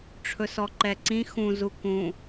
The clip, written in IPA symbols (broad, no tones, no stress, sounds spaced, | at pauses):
ʈ͡ʂʰ ɵ s ɔ ǃ ɛ ǀ ĩ x ũ z u k ũ